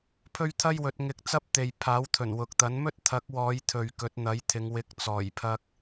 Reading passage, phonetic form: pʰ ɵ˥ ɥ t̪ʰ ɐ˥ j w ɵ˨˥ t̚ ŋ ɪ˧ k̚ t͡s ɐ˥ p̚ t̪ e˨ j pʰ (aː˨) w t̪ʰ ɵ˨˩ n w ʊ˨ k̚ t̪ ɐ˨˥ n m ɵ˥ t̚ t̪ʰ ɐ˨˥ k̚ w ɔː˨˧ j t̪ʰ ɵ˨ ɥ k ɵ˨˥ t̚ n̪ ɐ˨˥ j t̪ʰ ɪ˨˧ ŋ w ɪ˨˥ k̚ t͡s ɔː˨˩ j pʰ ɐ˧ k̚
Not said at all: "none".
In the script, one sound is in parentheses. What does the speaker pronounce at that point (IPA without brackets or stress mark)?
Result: aː˨˥